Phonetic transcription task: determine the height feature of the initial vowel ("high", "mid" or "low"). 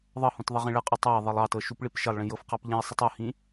mid